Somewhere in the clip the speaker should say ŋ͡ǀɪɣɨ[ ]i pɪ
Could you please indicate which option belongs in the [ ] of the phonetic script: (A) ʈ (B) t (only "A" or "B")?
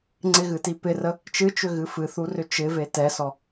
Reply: B